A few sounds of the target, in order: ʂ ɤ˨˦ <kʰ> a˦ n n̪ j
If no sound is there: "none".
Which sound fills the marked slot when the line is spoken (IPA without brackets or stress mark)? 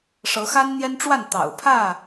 x